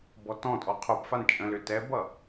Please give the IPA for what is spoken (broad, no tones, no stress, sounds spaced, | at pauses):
b ɔ t ɔ̃ tʼ ɔ qʰ o p f a n t͡ʃʼ ə̃ l ʏ t ɛ b ʌ